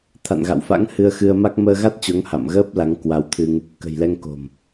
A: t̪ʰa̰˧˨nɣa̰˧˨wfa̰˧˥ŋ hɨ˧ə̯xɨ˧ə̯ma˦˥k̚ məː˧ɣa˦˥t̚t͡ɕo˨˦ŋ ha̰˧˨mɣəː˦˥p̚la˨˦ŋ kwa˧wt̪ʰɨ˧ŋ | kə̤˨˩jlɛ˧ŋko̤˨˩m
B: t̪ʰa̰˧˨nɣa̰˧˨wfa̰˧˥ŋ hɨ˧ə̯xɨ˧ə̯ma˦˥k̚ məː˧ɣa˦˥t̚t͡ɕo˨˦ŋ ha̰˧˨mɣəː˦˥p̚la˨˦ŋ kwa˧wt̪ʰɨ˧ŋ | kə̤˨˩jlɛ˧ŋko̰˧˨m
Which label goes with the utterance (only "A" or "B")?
A